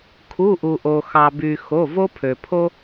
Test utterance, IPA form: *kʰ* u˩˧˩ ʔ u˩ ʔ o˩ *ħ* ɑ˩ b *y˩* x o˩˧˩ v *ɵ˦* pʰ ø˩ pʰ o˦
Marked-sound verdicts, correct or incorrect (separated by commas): correct, incorrect, correct, incorrect